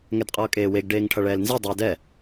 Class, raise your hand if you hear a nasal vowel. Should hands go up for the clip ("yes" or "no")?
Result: no